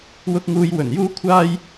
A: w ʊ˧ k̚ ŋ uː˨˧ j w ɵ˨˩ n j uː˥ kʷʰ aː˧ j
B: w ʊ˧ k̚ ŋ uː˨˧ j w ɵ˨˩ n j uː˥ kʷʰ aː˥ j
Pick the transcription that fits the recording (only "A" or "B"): B